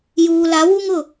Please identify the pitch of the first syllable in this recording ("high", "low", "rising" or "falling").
low